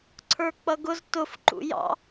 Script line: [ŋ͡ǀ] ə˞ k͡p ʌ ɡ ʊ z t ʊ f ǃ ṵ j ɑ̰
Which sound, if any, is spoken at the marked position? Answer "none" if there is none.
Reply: ǀʰ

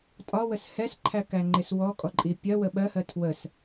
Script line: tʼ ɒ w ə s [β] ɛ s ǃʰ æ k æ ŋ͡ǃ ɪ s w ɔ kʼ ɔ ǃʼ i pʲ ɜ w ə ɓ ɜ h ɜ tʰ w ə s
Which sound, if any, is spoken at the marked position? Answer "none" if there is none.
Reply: h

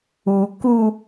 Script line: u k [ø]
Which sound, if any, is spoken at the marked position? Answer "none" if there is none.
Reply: u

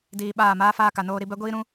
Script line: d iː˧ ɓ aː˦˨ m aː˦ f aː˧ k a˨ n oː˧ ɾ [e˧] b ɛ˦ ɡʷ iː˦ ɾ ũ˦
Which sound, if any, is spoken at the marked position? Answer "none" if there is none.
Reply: i˧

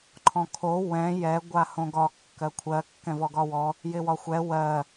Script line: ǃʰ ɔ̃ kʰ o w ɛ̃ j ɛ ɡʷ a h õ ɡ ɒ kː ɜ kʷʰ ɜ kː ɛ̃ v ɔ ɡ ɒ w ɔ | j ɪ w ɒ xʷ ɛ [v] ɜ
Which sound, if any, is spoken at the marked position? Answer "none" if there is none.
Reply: w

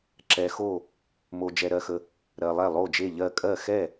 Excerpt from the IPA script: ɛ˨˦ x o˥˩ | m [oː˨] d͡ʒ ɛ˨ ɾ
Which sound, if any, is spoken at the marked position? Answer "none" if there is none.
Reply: o˨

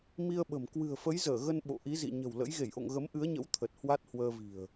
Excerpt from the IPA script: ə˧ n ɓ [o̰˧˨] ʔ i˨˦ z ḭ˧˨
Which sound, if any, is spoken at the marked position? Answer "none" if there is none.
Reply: o̰˧˨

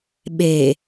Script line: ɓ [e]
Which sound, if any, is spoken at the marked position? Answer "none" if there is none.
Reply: e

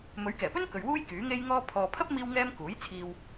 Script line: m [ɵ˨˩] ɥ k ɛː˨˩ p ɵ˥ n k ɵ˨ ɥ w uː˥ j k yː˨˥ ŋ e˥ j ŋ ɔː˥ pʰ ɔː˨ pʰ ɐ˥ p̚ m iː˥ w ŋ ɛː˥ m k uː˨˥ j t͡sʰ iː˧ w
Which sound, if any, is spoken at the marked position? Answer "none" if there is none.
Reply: ɵ˨˥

